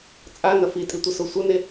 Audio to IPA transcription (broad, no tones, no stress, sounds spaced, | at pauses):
t͡sʼ a n ɐ f i tʼ i tʷ ɐ s o sʷ ɐ n e